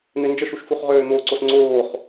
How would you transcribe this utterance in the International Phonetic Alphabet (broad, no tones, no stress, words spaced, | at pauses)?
n̪ɪnd͡ʒəʃuʃ fuχʁøːn̪oǀos ŋ͡ǀoːχ